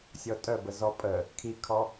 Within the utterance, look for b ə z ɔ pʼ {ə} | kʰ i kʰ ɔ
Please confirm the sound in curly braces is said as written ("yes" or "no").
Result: yes